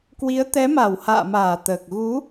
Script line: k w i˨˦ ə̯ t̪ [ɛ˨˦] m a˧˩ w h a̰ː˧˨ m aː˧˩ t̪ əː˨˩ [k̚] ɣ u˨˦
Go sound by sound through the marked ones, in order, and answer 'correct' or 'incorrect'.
correct, correct

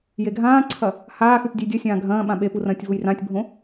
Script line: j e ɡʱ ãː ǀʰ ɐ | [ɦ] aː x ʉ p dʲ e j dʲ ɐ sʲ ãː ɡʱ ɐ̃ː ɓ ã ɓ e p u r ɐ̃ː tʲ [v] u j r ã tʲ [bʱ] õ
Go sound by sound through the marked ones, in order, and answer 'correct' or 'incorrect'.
incorrect: h, correct, correct

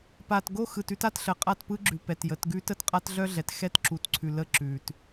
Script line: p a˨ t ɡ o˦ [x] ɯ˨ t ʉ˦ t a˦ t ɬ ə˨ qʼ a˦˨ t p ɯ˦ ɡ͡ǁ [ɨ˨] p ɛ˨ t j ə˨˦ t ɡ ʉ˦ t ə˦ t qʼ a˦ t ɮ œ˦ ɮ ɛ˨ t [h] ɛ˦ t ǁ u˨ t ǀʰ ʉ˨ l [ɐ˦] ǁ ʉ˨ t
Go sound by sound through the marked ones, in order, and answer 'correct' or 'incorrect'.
correct, incorrect: ʉ˨, incorrect: x, incorrect: ə˦

